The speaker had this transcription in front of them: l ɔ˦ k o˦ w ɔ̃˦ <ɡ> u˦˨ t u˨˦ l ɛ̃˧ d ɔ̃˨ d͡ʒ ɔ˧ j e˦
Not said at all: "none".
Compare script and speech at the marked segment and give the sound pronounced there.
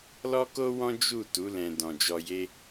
d͡ʒ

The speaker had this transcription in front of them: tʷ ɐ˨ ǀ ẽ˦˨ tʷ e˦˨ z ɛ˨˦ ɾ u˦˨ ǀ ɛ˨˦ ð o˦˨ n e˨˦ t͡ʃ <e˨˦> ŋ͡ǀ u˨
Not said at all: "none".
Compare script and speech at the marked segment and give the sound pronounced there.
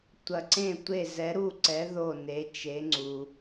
e˨˦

